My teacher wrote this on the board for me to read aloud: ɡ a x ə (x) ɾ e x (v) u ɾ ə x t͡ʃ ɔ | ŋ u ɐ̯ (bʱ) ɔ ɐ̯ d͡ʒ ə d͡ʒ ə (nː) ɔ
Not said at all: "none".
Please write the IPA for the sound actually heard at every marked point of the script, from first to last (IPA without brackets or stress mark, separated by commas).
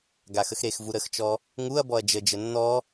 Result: x, v, b, nː